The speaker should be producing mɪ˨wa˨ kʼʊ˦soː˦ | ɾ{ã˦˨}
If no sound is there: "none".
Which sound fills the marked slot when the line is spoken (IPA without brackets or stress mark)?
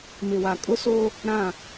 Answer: ã˦˨